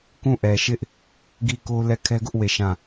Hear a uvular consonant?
no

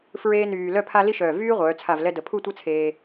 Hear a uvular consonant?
yes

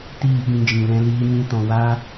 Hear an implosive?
yes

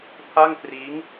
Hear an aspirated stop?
yes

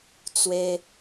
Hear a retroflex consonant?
no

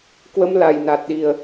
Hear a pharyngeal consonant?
no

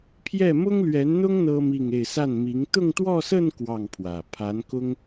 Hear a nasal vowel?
no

